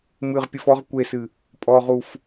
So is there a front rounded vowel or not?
no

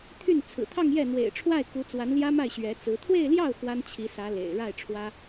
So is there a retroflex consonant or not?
yes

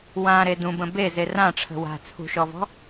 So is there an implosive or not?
no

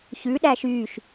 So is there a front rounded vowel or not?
yes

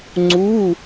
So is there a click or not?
yes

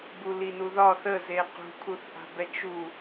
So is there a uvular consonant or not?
yes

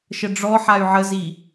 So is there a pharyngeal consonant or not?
yes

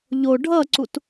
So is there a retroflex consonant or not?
yes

